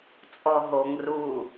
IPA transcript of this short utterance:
t͡sʼ ɔ ɦ o ŋ r u

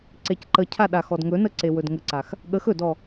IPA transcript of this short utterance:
ǀ e c ǃ ə cʰ a ɗ a x ɔ d ŋ ɵ n ə ǀ e w ɵ d ŋ ə ǀ a x | ɠ ə x ɵ d ɔ

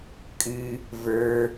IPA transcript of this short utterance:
kʼ ɨ | v ə˞

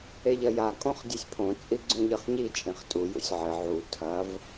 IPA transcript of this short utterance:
e ʎ ɐ j a kʼ õ χ dʲ ɨ sʲ pʰ õ t͡sʼ i ɡ͡ǀ ũ ʎ ɨ χ ɲ i t͡ʃʼ ĩ χ tʼ u j ṵ sʲ ʕ ɘ ʕ u tʰ ɐ v

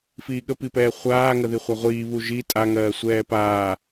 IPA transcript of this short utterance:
f iː ɠ ə p i p ɛː χʷ aː ŋ ə ð i χʷ a ʁʷ iː β u ʒ i tʼ a ŋ ɜː sʷ ɛː p aː

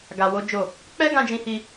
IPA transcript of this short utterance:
ɡ a˧ w o˦ d͡ʒ o˦˨ | k͡p ɛ˦ ɡ ã˧ d͡ʒ ĩ˧ h i˧

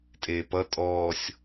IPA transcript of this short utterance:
tʼ eː p ʌ tʼ ɔː sʲ

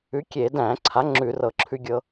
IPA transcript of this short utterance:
ʉ˨˥ kʲ e˧˩˧ d æ̃˧˩˧ ǀʰ a˨˥ ŋ͡ǁ ʉ˧˩˧ r ɤ˧˩˧ ǁʰ ʉ˧ ɡʲ ɤ˧

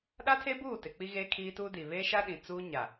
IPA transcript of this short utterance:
ɗ a˦ tʰ e˦ b uː˦˨ t ɪ˨ k͡p i˦ ɣ e˦ kʰ iː˦ t uː˦ d i˨ β e˦ ʃ a˦ ɗ ĩ˨ t͡s uː˦ ɲ a˨

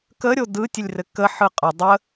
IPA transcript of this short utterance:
k ə ɾʲ o d ɯ tʲ ɘ lʲ r ɘ k ə ħ ɯ qʼ ə dˤ ə

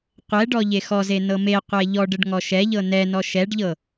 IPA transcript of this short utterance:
qʷ ɛ ɖ ɔ ʎ e x ɔ z e n ɤ m e qʷ ɛ ʎ ɔ ɖ ə ɖ ŋ ɔ ʃ ɛ ʎ ɤ n ɛ n ɔ ʃ ɛ ɖ ʎ ɤ

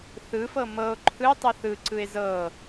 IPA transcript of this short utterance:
θ ɯ f ɤ m ɤ o̯ ǃʰ ɯ tˤ ɯ θ ɯ ǀ ɯ e̯ z ɤ

